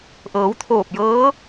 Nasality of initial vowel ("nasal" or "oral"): oral